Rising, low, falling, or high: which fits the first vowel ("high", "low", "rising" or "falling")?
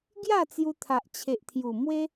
falling